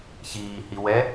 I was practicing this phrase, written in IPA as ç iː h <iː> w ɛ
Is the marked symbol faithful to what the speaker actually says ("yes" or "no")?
no